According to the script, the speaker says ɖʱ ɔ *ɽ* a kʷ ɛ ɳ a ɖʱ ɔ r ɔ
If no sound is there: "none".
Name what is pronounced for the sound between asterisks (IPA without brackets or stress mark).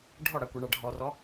ɽ